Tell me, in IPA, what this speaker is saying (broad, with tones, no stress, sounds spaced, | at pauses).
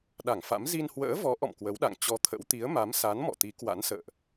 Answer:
ɗ a˧˩ ŋ f a̰˧˥ m z i˧ n h w ə̰ː˧˥ v ɔ˨˦ ʔ ɔ̰˧˨ m k w ə˨˦ w ɗ a̰˧˨ ŋ t͡ɕ ɔ˧ t̪ʰ ə̰˧˥ w t̪ i˨˦ ə̯ m a˨˦ m s a˨˦ n m ɔ̰˧˨ t̪ i˨˦ k w a̰˧˥ n s ə̰ː˧˨ ʔ